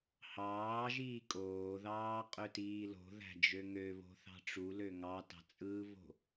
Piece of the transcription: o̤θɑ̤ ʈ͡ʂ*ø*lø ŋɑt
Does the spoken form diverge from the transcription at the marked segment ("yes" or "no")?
yes